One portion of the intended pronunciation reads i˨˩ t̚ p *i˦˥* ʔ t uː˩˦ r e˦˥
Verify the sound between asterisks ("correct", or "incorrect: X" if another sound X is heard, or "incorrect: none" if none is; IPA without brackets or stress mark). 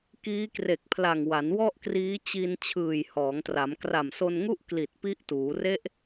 correct